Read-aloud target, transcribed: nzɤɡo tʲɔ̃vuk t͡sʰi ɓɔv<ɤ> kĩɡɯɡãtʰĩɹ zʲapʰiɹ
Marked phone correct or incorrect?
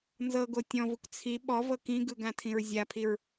correct